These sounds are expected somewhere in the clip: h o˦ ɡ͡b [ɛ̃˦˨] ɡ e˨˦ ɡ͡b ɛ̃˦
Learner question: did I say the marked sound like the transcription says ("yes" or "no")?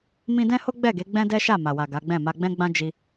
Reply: no